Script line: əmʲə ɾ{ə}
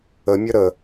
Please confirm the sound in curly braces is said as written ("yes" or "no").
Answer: yes